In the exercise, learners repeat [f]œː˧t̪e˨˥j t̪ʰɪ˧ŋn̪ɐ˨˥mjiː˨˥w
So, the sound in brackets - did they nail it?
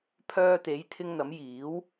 no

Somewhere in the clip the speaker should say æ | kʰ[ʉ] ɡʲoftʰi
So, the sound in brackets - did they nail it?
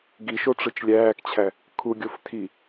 no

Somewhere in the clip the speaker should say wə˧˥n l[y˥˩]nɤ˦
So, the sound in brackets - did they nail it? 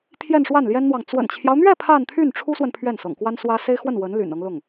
no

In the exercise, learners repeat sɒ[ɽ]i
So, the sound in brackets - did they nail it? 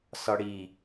yes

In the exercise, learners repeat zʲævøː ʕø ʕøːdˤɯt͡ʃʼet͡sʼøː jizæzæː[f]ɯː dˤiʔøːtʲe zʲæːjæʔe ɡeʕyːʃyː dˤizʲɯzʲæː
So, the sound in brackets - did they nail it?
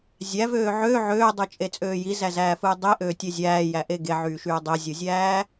yes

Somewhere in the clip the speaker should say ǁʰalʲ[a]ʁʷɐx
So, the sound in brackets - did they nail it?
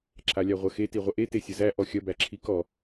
yes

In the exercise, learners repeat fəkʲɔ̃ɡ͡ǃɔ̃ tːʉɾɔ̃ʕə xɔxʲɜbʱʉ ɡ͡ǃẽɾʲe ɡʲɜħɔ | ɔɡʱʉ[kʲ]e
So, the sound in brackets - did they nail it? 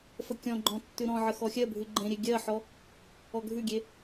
no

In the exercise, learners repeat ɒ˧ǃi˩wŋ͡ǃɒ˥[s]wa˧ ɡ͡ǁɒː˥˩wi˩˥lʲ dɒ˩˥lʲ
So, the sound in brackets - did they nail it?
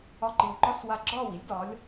yes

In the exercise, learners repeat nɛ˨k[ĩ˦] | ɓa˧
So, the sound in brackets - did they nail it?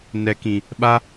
no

